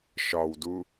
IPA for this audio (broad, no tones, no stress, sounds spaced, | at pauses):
ʃ ɒ w d u